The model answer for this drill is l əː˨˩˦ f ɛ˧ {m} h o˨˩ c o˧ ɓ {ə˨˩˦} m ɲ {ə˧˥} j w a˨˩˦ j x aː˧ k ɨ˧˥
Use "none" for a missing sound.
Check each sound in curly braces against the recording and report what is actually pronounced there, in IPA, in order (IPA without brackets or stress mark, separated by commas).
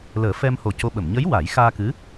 m, ə˨˩˨, ə˧˥